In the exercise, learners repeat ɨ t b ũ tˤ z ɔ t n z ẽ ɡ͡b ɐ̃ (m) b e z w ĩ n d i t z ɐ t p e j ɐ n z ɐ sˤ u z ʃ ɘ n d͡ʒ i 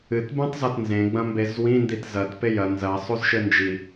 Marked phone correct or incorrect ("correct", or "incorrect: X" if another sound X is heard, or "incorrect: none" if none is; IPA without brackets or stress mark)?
correct